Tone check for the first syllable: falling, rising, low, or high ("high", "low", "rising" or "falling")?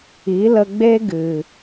rising